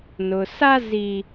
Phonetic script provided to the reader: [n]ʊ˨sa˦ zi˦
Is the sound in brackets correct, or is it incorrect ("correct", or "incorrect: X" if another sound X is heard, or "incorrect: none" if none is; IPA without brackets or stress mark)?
correct